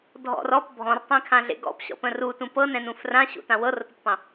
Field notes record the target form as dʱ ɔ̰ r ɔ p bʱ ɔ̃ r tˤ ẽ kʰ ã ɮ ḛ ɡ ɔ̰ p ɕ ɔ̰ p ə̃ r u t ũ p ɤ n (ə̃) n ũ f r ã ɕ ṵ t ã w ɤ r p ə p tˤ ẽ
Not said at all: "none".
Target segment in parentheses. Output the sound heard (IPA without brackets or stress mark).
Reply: ɛ̃